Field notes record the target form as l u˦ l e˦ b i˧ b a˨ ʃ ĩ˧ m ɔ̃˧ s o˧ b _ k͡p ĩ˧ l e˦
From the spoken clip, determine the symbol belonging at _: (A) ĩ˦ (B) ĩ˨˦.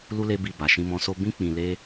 A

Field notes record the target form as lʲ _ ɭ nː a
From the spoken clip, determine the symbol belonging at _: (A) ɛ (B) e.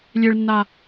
B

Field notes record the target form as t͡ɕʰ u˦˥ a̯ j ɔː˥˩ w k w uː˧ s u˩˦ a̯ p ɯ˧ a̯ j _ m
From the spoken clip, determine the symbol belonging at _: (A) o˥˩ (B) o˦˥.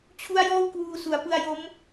B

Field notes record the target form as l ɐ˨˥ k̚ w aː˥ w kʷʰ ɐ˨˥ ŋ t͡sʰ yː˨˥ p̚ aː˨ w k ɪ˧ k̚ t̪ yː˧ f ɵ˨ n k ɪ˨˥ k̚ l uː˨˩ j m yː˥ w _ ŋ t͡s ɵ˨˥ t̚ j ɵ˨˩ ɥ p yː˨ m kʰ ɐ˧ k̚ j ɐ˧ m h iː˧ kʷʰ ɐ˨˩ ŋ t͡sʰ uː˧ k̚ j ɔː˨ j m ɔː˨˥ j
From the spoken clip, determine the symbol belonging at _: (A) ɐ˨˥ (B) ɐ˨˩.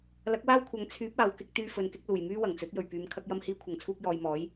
B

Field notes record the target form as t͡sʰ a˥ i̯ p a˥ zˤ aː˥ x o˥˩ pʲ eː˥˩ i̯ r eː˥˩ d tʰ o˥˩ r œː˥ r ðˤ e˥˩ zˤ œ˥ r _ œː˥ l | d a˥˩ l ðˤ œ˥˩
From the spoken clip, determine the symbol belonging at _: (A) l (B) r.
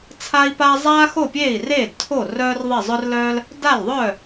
A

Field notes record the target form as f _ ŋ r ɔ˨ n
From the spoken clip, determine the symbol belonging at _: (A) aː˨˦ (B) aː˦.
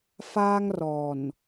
B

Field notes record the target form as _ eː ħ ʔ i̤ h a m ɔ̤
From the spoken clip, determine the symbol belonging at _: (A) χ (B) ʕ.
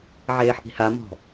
B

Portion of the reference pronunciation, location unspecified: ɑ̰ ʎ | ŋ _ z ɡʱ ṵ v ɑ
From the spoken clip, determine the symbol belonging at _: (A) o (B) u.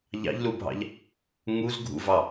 B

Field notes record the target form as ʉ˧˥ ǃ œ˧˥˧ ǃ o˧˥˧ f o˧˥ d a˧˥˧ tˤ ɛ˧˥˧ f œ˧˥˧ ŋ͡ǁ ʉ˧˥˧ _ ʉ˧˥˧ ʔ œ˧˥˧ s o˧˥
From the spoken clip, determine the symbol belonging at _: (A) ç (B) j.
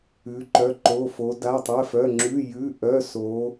B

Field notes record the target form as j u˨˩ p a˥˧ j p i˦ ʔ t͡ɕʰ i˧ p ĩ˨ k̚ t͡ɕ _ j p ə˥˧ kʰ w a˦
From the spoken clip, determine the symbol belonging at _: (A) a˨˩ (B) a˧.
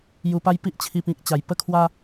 A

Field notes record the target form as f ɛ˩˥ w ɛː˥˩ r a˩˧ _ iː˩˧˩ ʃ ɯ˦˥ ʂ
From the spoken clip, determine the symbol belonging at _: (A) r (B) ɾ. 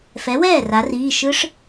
A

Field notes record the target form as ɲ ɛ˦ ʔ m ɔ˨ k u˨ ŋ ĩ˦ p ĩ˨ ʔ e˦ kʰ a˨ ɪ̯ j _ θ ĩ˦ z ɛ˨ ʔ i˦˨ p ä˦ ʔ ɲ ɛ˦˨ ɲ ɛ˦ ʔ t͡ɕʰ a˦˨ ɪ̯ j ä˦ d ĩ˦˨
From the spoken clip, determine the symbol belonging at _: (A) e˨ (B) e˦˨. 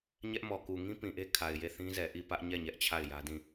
B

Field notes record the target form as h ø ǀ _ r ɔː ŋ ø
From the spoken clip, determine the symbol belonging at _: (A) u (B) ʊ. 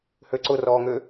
B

